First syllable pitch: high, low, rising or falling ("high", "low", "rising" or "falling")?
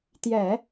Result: low